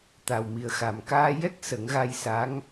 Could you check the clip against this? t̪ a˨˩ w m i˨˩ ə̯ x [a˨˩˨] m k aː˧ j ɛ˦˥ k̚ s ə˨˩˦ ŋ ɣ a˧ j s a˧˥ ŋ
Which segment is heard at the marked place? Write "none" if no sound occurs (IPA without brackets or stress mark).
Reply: a˨˩